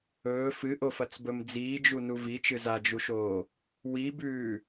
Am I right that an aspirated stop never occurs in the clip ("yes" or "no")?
yes